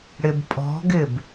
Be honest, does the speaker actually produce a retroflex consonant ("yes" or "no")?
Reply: yes